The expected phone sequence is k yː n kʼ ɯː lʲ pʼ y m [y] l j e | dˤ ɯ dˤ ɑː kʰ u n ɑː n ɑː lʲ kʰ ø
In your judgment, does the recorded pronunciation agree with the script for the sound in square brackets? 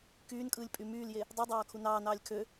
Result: no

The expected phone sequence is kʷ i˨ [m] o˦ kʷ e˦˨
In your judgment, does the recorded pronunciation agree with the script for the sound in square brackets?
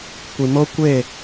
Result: yes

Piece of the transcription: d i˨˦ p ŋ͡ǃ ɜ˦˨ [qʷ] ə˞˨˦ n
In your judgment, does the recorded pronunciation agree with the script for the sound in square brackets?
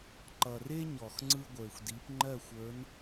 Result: no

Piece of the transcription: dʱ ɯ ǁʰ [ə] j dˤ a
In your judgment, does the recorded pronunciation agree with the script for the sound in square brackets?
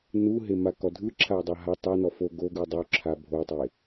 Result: no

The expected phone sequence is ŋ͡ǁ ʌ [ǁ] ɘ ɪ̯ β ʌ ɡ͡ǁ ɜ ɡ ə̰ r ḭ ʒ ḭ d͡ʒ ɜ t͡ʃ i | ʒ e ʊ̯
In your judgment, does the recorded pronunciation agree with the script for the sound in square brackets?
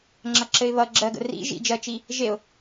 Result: yes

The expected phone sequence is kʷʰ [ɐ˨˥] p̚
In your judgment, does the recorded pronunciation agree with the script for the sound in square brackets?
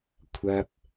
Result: no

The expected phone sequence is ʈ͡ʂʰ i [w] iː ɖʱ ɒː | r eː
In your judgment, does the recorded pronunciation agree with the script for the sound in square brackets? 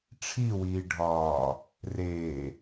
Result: yes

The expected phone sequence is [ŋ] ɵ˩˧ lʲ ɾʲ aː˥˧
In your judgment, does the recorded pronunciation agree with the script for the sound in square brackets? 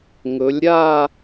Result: yes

